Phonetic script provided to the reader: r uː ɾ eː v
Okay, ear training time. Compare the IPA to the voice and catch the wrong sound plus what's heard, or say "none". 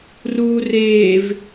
ɾ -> r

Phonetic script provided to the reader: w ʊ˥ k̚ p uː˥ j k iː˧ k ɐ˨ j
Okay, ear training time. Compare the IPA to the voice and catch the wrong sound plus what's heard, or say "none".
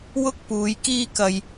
uː˥ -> uː˨˧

